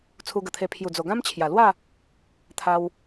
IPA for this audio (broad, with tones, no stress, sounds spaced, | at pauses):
t͡sʰ u˧ ɡ ə˨˩ t̪ʰ e˧ pʰ j u˨˩ d͡z o˨˩ ɡ ã˦ m t͡ɕʰ j a˨˩ l w a˥˧ | t̪ʰ a˦ w